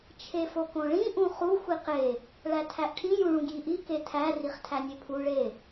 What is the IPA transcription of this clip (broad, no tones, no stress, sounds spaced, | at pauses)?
t͡ʃʰ e f o k õ ɭ ĩ ʔ ũ χ u xʷ i q e | ɭ æ tʰ æ ʔ ʈʰ ĩ j ũ ɭ ũ ɡ j i ʔ i k e tʰ æ r i χ tʰ æ nʲ e pʰ u ɭ e